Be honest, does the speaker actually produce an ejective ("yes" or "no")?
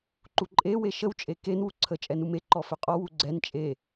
yes